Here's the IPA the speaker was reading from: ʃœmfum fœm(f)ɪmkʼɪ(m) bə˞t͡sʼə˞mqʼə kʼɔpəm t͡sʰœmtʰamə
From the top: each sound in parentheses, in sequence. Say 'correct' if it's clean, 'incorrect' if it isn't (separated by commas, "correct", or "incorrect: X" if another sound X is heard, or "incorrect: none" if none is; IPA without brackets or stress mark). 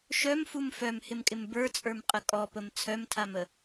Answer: incorrect: h, correct